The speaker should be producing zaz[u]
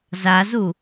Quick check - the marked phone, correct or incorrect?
correct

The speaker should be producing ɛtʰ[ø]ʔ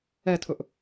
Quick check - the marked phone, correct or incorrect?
incorrect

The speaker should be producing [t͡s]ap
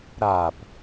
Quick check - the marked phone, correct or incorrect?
incorrect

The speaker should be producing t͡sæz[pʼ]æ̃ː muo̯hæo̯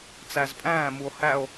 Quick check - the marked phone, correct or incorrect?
correct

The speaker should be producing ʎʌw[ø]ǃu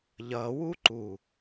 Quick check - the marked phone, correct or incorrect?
incorrect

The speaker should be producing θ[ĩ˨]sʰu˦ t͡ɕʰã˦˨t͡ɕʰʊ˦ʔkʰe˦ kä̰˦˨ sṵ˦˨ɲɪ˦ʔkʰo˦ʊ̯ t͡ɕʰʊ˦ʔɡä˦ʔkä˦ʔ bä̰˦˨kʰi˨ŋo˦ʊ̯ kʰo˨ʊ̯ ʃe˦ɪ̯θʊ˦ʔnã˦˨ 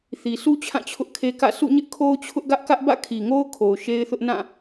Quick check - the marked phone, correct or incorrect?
incorrect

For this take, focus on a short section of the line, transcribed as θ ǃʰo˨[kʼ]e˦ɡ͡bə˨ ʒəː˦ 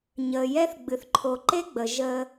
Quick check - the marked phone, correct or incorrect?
incorrect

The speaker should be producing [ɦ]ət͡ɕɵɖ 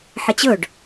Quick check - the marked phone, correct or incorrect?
incorrect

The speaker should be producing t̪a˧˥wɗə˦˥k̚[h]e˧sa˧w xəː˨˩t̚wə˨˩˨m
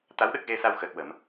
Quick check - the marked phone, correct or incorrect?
incorrect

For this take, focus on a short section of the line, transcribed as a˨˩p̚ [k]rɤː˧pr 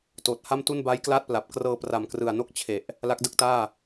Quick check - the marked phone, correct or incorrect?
correct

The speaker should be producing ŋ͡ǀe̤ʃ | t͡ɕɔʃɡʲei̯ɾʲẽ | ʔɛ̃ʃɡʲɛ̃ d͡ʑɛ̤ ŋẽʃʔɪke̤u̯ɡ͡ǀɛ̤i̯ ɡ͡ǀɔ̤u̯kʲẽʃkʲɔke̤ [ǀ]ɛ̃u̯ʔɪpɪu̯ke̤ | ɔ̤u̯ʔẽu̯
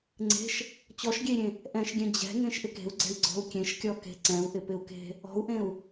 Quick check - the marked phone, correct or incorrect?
correct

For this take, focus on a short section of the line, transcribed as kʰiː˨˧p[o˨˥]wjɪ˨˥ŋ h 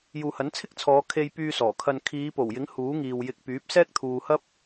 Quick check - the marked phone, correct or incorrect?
incorrect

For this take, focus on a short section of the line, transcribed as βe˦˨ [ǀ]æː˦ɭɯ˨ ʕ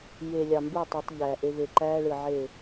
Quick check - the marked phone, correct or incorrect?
incorrect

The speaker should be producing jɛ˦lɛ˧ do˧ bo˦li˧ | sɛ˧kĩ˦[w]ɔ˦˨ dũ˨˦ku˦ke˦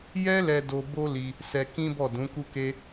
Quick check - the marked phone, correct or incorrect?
incorrect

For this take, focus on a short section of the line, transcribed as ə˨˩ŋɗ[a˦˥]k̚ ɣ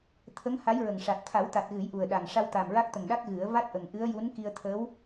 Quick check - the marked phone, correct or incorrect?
correct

